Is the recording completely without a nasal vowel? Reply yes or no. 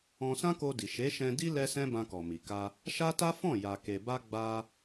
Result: no